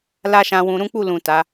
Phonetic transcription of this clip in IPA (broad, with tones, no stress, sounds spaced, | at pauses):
l a˦ ʃ ã˧ w ũ˧ ɾ ũ˦ k͡p u˦˨ l ũ˨ t a˨˦